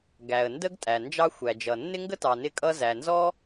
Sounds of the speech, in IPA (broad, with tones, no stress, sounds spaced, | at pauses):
ɡ æ˩ ə̯ n d ə˥ ɡ tʼ æ˩ n d͡ʒ ɑ˥ xʷ æ˩ d͡ʒ ʌ˩ nː ɪ˥ ŋ ɡ ə˥ t ɑ˩ n ɪ˥ kʼ ʌ˥ z æ˩ n z ɔ˥